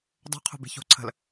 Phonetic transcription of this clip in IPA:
dˤ o̤ qʰ o̤ b e̤ ç o̤ ǀʰ ə̤ l

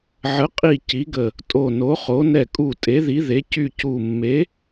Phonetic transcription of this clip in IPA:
ʕ ə˨˥ qʼ i˧˩ c i˨˥ ɡ ə˧˩ | tʼ o˧˩ n o˨˥ χ o˨˥ n ɛ˧˩ kʼ u˧˩ tʼ e˨˥ ð i˨˥ ð e˨˥ c y˧˩ c u˧˩ mː e˨˥

